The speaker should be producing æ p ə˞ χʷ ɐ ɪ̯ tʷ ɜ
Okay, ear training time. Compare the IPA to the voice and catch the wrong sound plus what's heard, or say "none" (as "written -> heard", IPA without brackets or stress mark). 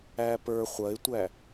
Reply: ɜ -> æ